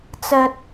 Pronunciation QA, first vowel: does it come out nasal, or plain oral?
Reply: oral